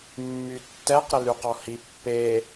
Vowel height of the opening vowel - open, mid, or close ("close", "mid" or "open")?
close